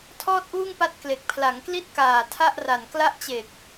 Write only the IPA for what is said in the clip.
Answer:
tʰ ɔː˥˩ t̚ ʔ uː˥˩ ŋ p a˦˥ t̚ k l e˨˩ k̚ pʰ l a˩˦ ŋ k l i˥˩ t̚ k aː˨˩ tʰ a˥˩ ʔ r a˨˩ n k l a˥˩ ʔ t͡ɕ e˨˩ k̚

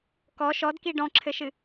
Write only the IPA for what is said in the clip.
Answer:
k ɔ ʃ ɔ d k i ɖ ɔ̃ ǁʰ ɘ ʃ ɨ

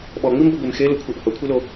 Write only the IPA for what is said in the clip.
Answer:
ɓ ɔ ŋ͡m i m b ɤ ɡʷ e m x e l ɤ kʷʰ ə˞ ʔ h ɤ kʷʰ i l o

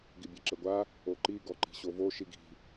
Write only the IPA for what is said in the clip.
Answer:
ɡ i bʲ ɛ ǁ ɘ ɡʷ a | o ǃ i ɡ ɔ ǃ i̤ ɕ o v o ʃ i ɡ i̤

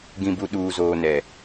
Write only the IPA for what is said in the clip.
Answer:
ɡ ĩ˨ b u˨ ɗ uː˨ z oː˨ n ɛ˨

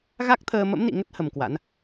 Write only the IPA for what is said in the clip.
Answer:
ɣ a˦˥ k̚ t̪ʰ əː˧ m ə̰˧˥ m n ḭ˧˨ ŋ ə˦˥ t̚ h ə˧ m k w a̰˧˥ n

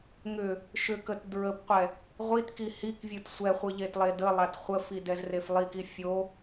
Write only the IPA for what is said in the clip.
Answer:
ŋ ʏ | ʃ ʏ k ə t d ɹ ə p qʷ ɛ | ʁʷ i t k i h i k vʲ ɯ t sʷ ɛ χʷ ɯ ʎ e t lˠ e d ə lˠ a t χʷ ə f i d ɛ z r e f lˠ i k i fʲ o

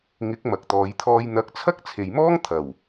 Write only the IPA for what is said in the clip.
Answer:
ŋ ɪ˨˥ k̚ m ɐ˨ k̚ t̪ ɔː˨˧ j t̪ʰ ɔː˧ j n̪ ɐ˨˥ k̚ t͡sʰ ɐ˥ k̚ t͡sʰ e˨ j m ɔː˥ ŋ t̪ʰ ɐ˨˩ w

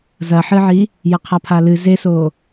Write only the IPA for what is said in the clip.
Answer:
z ɐ ħ ɨ ʕ i | j ɐ qʰ a pʰ a l ɨ z e s o

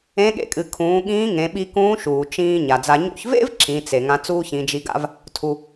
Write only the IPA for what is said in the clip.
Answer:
ẽ˧˥ ɠ ḛ˧ kʼ ɨ˩˧ kʰ ũː˩˧ ɠ ĩː˧˥ ŋ ẽ˩˧ ɓ i˧ k ũː˧˥ ʃ uː˩ t͡ʃ ĩː˧ ɲ a˩ d͡z a˧ ɲ ṵ˧ ç v ḛ˥ v ǁ ĩ˩˧ t͡s e˩ ŋ ã˧ t͡s uː˥ ç ĩ˩˧ d͡ʒ i˧ ɡ a̰˥ v | tʰ u˩

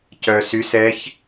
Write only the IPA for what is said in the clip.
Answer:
c œ s y s ɛ ç

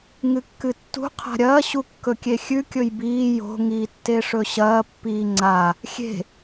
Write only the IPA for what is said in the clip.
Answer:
ŋ ɨ kː ɨ tː ṳ qʰ a̤ ɾʲ ɐː ɕ u kː ɵ kʲ e xʲ ʉ kʲ ɵ j b iː j o̤ ŋ iː tː e ʂ ɵ ɕ ɐː pː iː ŋ͡ǀ a | xʲ e̤

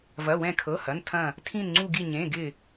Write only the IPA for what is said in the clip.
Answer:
v ɐ˩˧˩ w ɛ̃˧˩ kʰ ɤ˩˧˩ h ɐ˩˧˩ n tʰ ɐ̃˧˩ | tʰ ĩ˧˩ n ŋ͡ǀ u˧˩ ɡ i˧˩ ɲ ẽ˩˧˩ ɡ ɪ˧˩

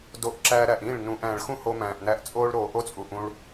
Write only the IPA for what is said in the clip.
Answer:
d o˧ ʔ ǁ æː˧ ɾ æ˨ ʔ ĩː˦˨ ɭ n ũː˨ ʔ æ̃ː˨ ɭ x ũ˦ h o˧ m æ̃ː˨ ʔ n æ˧ ʔ t͡sʼ oː˦ ɭ ɾ oː˨ ʔ o˦ t͡sʼ u˨ ʔ ũ˧ ɭ

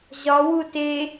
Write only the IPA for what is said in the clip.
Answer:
ʑ ɒ w u t e

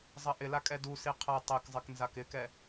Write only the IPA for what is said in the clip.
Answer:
zˤ ɐ ʔ ɪ l a kʼ ɛ d u s i qʰ ɐ tˤ e k zˤ ɪ k n z a k ɪ k ɛ

